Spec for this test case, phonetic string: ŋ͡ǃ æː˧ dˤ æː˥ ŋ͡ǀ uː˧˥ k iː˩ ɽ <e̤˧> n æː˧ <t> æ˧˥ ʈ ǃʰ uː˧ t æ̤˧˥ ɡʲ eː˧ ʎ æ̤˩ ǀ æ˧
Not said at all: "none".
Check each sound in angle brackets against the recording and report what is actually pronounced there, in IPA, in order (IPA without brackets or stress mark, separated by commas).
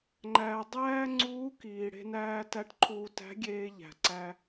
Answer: e̤˧, t